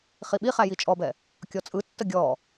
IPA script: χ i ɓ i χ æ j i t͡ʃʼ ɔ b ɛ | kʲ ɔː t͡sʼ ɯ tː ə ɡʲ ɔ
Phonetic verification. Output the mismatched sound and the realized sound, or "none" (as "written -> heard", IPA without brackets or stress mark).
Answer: ɔː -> ɔ